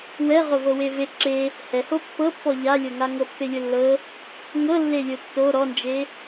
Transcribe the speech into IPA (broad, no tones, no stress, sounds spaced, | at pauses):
w ɛ ʁ o v ɤ w e v e ǁ e | h ɛ h o pː ɤ pː ɔ ʎ a lʲ ɤ ŋ a ŋ ɤ pː e lʲ o lː ɤ | ŋ ɤ lː e lʲ o tː o ɾ ɔ n d͡ʒ e